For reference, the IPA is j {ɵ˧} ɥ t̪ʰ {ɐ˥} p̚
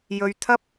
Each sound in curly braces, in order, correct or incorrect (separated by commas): correct, correct